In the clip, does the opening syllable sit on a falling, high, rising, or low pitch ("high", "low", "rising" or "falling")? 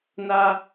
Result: low